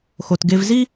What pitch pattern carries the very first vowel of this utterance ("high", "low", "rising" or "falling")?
low